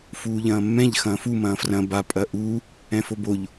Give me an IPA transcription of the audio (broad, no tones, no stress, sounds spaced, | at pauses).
f uː ʎ ɐ̃ː mː ɛ̃ ʎ x ɐ̃ː f u m ɐ̃ː f r ɐ̃ b a pʼ ɐ ʔ u | ɛ̃ f o b o ʎ